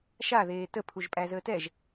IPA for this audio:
ʃaðeː təpʰuʒ pʼæzəːtɛʒ

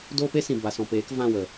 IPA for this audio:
doː˦pe˦sĩ˨ ba˨sɔ̃˨peː˨˦k vã˦˨wə˨

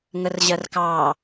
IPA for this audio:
ŋərʑɜrkɑ

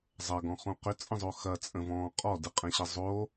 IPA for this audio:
zˤɐɡɔ̃χõ qʏt͡sʼə̃zˤo xɐt͡sʼə̃vɔ̃ː qʼɔdɯqʼɛ̃ɕə zˤo

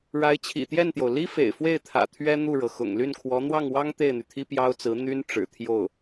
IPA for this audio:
ɻa˧˥ɪ̯t͡ɕʰḭ˨˩t̪jɛ˥˩nt̪jo˩ʊ̯ li˥fḛ˨˩ɪ̯fwe˥˩ɪ̯t̪ʰä̰˨˩ t̪ʰɥɛ˥ n̪u˥˩ɻɤ˩ xʊ̰˨˩ŋ ly˥˩nkʰwɔ˧˥ n̪wɑ˥˩ŋwɑ˥ŋ t̪e˥˩ɪ̯n̪y˩t̪ʰi˥ pjɑ˥ʊ̯t͡sɹ̩˧˥ n̪y˥nʈ͡ʂɻ̩˨˩t̪ʰjo˥˩ʊ̯

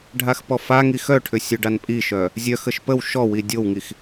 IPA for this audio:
ɖʱaxpɔfaŋi xœʈʰʏ sʲœɖanpʼiʃœ | zʲœxəʃ pəw ʃɔwi dʲowŋix

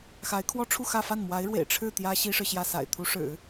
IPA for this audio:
xa˧˥ɪ̯kʰwɔ˥ʈ͡ʂʰu˥˧xä˥˧ fa˥˩nmwa˧˥ɪ̯ɻwḛ˨˩ɪ̯ ʈ͡ʂʰɻ̩˥˩ t̪jä˥ ɕi˥ʂɻ̩˨ɕjä˥˩ sa̰˨˩ɪ̯ t̪ʰu˧˥ʂɻ̩˨˩˦

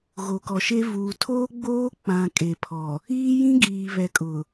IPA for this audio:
ɣo˨kɔ˨ʃe˦ vuː˨tʰoː˦ɡ͡boː˦ k͡pã˨ kʼe˨pʰɔ˨ | iː˦jĩ˦ ɡiː˨βɛ˨ kʼʊ˨

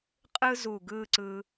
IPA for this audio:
qʼɯ˥ zu˧˩ɡɯ˥˧ǀɯ˧

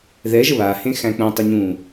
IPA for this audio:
ðɛʒə βahẽxæ̃ k͡pũtˤɪɲũː

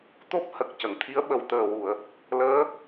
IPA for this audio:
t̪o˦˥p̚hə˨˩k̚ cə˨˩˨ŋt̪ʰi˧˥ə̯ɓə˨˩w t̪əː˨˩wu˨˩˨ə̯ | ləː˧˥

